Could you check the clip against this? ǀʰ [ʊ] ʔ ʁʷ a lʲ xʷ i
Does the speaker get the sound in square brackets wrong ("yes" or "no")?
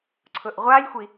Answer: no